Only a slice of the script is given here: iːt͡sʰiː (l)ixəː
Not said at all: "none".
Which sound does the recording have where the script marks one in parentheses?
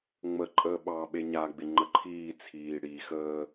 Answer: ɽ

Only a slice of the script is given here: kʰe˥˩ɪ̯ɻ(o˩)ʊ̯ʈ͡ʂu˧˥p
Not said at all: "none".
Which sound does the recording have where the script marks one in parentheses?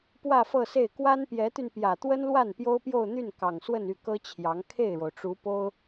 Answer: o˩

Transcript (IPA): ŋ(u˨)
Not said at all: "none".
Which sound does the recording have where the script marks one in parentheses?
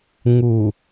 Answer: u˨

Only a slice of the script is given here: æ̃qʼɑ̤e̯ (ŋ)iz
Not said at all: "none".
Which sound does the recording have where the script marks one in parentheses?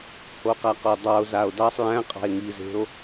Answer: ŋ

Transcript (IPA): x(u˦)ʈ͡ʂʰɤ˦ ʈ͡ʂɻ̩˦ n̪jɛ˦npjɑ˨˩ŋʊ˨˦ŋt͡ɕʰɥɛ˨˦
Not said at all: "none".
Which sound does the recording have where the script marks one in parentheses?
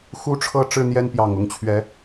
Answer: u˦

